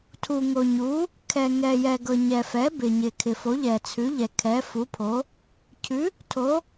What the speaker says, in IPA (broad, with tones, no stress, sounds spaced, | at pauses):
tʰ u˩ ŋ o˩ ɲ u˩˥ | kʰ ɛ˩ ŋ ɛ˩ j ɛ˩ ɡ ɤ˩ ɲ ɛ˩ f ɛ˩˥ b ɪ˩ ɲ ɪ˩ kʰ ɪ˩ f o˩˥ ʎ ɛ˩ t͡sʰ ʉ˩˥ ʎ ɛ˩ kʰ ɛ˩˥ f u˩˥ pʰ o˩˥ | cʰ ʉ˩˥ | tʰ o˩˥